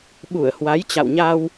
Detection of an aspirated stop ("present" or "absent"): absent